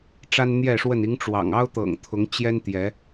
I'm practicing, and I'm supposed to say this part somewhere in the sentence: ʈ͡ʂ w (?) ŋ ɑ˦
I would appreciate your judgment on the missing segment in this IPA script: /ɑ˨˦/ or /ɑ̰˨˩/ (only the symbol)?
ɑ̰˨˩